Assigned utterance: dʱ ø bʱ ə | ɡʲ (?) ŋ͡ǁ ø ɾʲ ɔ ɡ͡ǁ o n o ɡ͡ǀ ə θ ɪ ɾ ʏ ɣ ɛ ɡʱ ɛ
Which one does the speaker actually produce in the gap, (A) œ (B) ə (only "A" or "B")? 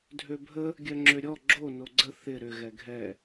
A